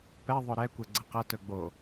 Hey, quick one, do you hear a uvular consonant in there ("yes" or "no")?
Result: yes